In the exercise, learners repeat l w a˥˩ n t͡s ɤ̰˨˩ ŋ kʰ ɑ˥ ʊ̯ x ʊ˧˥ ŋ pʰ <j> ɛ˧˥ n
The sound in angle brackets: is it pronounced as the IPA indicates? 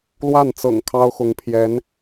yes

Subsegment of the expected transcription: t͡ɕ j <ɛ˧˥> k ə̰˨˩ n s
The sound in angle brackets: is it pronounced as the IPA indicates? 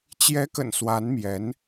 yes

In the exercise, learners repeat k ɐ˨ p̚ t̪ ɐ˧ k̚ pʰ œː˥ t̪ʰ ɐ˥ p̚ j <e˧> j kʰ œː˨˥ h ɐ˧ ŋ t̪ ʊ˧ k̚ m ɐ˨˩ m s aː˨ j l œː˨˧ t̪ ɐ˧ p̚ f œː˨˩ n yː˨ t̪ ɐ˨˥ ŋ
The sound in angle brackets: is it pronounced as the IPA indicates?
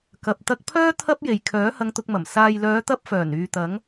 no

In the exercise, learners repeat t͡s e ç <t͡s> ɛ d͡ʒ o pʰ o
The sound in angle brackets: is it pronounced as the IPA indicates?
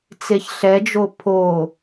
no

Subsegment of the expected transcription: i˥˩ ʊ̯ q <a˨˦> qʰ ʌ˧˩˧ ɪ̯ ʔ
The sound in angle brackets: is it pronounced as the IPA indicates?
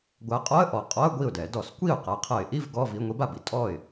yes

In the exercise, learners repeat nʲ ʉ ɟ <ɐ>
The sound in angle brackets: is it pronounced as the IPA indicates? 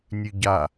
no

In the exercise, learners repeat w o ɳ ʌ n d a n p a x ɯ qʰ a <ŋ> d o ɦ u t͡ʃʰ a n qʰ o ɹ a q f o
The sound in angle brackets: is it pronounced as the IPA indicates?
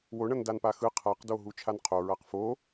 no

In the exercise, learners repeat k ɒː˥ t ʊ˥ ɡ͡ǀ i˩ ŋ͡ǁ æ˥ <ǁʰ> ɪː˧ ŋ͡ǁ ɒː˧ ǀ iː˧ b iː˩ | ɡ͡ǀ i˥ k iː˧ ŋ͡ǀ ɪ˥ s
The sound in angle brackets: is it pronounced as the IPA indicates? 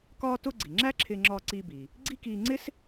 yes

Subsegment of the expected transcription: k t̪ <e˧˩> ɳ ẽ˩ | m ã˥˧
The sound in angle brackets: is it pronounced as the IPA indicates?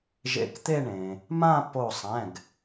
no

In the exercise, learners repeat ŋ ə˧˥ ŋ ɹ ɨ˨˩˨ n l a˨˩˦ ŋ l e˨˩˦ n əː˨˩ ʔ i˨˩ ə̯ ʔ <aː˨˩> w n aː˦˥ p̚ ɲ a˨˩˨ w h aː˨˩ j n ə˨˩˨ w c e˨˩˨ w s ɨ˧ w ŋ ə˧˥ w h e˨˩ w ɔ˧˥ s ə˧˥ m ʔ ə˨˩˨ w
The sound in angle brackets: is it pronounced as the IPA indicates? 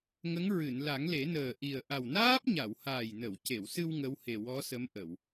no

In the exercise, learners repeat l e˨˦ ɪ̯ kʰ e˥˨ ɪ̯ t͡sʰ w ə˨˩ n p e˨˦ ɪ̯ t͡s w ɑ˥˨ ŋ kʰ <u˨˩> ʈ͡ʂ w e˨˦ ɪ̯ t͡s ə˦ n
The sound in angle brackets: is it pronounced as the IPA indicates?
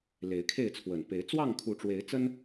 no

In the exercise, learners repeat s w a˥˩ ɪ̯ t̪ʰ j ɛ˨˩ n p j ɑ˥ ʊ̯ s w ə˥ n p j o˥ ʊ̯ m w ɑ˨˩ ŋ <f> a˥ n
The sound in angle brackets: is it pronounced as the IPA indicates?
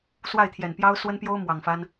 yes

